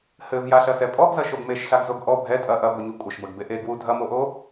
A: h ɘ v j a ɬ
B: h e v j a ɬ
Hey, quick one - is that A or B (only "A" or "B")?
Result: A